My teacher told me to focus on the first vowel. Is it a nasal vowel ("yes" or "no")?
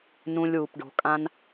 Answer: yes